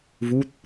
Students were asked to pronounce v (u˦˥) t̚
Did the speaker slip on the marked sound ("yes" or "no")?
no